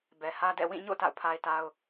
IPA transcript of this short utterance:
bɛ˨hä˦dɛ̰˦˨ wĩ˦˨ɲo̰˦˨ ta̰˦˨ʊ̯pʰa˦ɪ̯ta˦ʊ̯

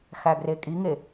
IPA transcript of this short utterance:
xæɡrekʼiŋe

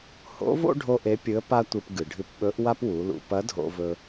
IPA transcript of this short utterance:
ho̰˧˥vo̰˥ ɖʱo˥ʔe˧˥pʲɨ˧˥ə̯ pa˥tʷɨ˧p ɡɨ˩ɖʱɨ˧p ɓɵ˧˥ʔwa˥pwu˩˧lṵ˩˧ pɐ˧˥dʱo̰˧vɵ˧

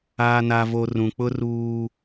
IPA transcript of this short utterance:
aː˨na˨vo˨ rũ˨k͡pʊ˦ruː˦

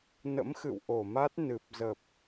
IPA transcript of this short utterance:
nə̰˧˥mxɨ̰˧˨w ʔo˧˩ma˦˥t̚ nɨ˨˩p̚ zə˨˩p̚

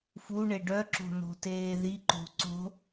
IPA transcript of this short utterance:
fuɳe ɖœǁo̤ no̤teːðiǃo̤ ǀo̤

